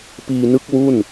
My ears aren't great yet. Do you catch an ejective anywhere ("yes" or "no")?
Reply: no